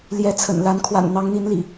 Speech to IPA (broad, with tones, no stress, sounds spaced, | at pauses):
l j ɛ˨˦ t͡sʰ ə̰˨˩ n l a˨˦ n kʰ w a̰˨˩ n n̪ ɑ˨˦ ŋ n̪ i˨˦ n l ḭ˨˩